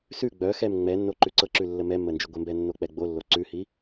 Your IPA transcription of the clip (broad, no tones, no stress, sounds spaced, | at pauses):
s ʉ ɡ͡b œ x ɛ m ŋ͡m ɛ nː o ǃ ʉ ǀ ɤ ǁ ʉ lː ə m ɛ mː ə n d͡ʒ i ɡʷ ə m b ɛ nː o k͡p ɛ ɡ͡b o lː o ǀ ʉ h i